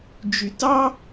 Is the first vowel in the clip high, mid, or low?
high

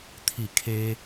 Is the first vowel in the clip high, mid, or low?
high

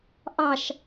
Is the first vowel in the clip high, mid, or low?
low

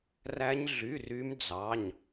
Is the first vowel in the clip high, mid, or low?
low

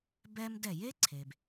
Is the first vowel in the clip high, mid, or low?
mid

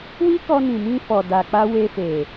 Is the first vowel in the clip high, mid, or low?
high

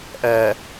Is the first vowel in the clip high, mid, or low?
mid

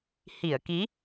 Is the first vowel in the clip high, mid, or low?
high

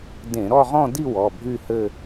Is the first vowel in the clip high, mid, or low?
mid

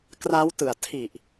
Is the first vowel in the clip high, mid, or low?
low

